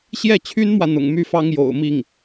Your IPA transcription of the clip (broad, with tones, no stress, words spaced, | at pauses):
ɕjɛ˥˩t͡ɕʰy˥nmwä˨ n̪ʊ̰˨˩ŋmy˥˩fɑ˥ŋ jo̰˨˩ʊ̯mi˥˩ŋ